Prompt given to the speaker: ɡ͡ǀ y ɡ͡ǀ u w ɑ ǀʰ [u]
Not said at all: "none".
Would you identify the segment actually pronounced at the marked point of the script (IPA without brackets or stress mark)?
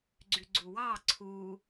u